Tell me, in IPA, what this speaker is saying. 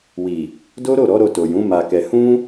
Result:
w i˨ | d o˦ ɾ o˦˨ ɾ ɔ˨˦ ɾ o˧ t o˨ j ũ˨˦ m a˧ k ɛ˧ h ũ˦

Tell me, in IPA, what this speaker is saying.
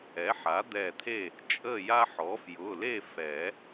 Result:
ɛ˩˥ ħ a˩˥ d̪ ɛ˧˩ t̪ʰ e˥˨ | t͡ʃʼ ə˥˨ j a˦ ħ ɔ˩˥ f j ʊ˩˧˩ l e˥˨ f ɛ˨˩˦

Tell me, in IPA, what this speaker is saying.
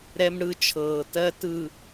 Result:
ɾ ɛ˦ m ɽ ɯ˦ t͡ʃʰ ɤː˨ t ɜ˦ t ɯ˨

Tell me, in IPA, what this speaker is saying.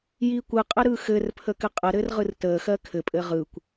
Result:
j i kʷ ɯ qʼ ə ɾ ɯ x ɘ r pʰ ə k ɘ qʼ ə ɾ ɘ r ʁ ɯ r t ə x ɜ kʰ ɘ pʼ ɘ ʁ ɯ kʷ

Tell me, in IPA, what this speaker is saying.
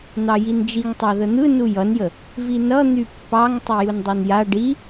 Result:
n̪ ɑ j i n d͡ʒ i ŋ tˤ ɑ ð ə n̪ ɯ n u j ʌ n j ə | v i n ʌ n̪ y pː ɑ ŋ tˤ ɯ j u n dˤ u n j a ɖ i

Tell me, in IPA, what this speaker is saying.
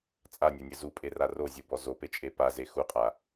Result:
t͡sʼ a nʲ a nʲ ɘ z u pʼ e r a r o zʲ u b ɔ z o p e t͡ʃʼ e p a z e x u qʼ a

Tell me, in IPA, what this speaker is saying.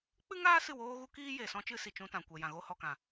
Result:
k͡p ɨ˦ ŋ aː˦ s ɨ˦˨ w oː˦ ɣ u˦ k iː˦ j e˨ s ɔ̃˦ t͡ʃ ɨ˦ s i˨ t͡ʃ ũ˧ t ã˨ kʷ ɛ˨ j ã˨ ɣ o˦ h ɔ˨ k ã˨

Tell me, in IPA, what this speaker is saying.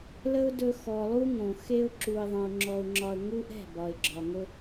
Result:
l ə˦ ʊ̯ d ɵ˧ x ɔ˨ lˠ u˦ ŋ õ˨ x e˧ ʊ̯ ǁ u˨ ɪ̯ ðˤ ə̃˨ ʊ̯ ŋ͡ǁ ɔ˧ ʊ̯ ŋ͡ǁ ɒ˧ ə̯ ŋ u˦ ʔ ɛ̤˦˨ b ɒ˨ ɪ̯ ɡ͡ǁ ɒ˨ ŋ ɵ˦

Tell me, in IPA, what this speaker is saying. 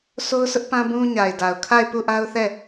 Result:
sʰ o˦ ʊ̯ s ʊ˦ ʔ p ã˦ b ũ˦ ɲ a˨ ɪ̯ d a˨ ʊ̯ kʰ a˦˨ ɪ̯ p u˦˨ ʔ a˦ ʊ̯ θ ɛ˦˨

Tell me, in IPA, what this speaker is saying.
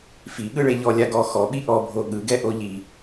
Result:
f i ɠ ɯ ɭ e ʎ ɔ lʲ a ɡ ɔ x ɔ ɓ i ʔ ɔ bʱ o ɠ ɯ ɡ ɛ ʔ o ʎ i

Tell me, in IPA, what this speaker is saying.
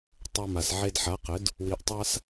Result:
tˤ o˧ m a˨ s ʕ e˧ d ħ a˨˦ q ɘ˨˦ d | w i˧ ʔ tˤ a˦ s

